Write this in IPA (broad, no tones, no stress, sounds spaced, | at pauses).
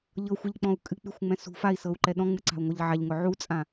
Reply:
ʎ ɤ xʷ ɛ ʎ k͡p ɔ̃ u̯ kʼ ɨ k͡p y xʷ ŋ͡m ɛ̃ s ṳ f a i̯ s ɤ u̯ ǃ ɛ ɗ ɔ̃ ŋ͡m ɨ ǀ a̤ u̯ ŋʷ ɤ ʎ ʕ a ʎ ŋ ʊ ʕ u t͡sʼ ã